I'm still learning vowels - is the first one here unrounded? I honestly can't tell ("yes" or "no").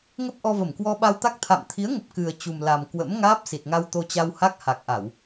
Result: yes